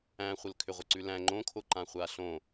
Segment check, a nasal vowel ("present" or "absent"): present